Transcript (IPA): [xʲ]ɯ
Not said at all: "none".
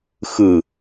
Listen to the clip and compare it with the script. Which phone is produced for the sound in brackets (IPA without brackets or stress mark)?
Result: x